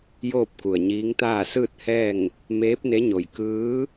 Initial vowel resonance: oral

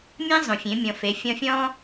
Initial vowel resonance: nasal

